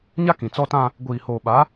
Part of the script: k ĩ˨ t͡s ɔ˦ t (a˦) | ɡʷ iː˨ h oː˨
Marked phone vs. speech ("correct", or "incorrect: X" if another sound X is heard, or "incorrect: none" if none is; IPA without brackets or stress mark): incorrect: ã˦